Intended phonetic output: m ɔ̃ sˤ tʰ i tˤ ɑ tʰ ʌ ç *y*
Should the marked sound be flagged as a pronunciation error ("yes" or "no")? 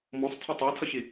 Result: yes